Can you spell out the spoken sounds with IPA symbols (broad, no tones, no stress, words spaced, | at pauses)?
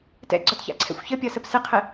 tɛ̰ɡ͡ǀɒtça̰ǀʰɛ̰xʷ çəpʲɒsəp sɨqʰɨ